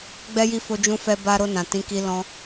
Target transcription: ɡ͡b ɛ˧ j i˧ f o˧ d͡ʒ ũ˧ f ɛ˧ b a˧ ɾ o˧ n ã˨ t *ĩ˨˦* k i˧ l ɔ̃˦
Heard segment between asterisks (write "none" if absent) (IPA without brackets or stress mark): ĩ˨˦